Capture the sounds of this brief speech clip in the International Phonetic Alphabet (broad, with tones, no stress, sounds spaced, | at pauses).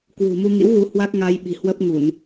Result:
k w ṳ˨˩ m u˧ ŋ ḭ˧˥ w ɣ u˨˦ h w a˦˥ k̚ ŋ a˧ j ɓ i̤˨˩ h w ə˦˥ p̚ ŋ u˧˩˨ n